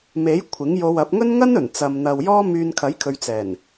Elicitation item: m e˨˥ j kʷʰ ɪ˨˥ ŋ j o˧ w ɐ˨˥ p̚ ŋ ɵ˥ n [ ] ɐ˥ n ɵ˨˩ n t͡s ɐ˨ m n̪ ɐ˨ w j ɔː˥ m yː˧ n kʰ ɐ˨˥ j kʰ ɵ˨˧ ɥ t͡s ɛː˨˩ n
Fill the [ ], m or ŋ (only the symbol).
ŋ